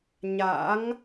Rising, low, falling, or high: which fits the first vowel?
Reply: rising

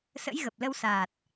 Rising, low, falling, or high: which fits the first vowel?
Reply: rising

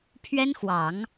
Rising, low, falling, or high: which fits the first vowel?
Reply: high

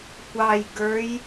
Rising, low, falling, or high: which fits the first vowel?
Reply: low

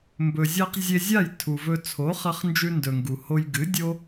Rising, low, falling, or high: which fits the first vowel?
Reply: low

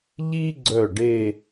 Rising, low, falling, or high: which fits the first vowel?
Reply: high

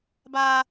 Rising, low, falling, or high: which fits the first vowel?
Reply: high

